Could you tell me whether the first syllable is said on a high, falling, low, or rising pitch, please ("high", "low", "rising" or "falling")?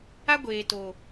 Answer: high